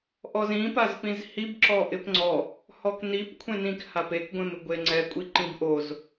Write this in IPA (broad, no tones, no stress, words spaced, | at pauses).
ʔɔzĩpazpĩz hib ǁɔʔɪpŋ͡ǀɔ | hɔknip kʷʰẽnĩk hapekɡʷẽmɪ ɡʷeŋ͡ǀɛ kʷʼiǃĩbʔoz